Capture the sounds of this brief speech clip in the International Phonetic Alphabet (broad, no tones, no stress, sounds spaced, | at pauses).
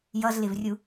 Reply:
j ʌ z l ɪ v rʲ u